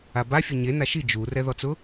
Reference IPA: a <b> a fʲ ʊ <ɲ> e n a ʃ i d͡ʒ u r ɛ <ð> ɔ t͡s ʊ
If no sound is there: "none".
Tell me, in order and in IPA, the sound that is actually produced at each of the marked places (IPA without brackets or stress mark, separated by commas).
b, ɲ, ð